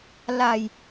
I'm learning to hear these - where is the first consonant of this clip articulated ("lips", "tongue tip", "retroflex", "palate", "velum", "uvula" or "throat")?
tongue tip